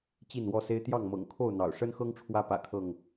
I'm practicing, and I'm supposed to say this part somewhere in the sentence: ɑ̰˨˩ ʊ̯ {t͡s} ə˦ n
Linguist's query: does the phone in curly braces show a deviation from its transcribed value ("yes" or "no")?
yes